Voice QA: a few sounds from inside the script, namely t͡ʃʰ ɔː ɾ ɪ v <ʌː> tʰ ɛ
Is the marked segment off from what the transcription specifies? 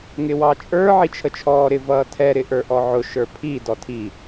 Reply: no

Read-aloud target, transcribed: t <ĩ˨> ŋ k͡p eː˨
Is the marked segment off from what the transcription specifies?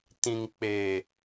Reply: no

